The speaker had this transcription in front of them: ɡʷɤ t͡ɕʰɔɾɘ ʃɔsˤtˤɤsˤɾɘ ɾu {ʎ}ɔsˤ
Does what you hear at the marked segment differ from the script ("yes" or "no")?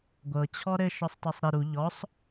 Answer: no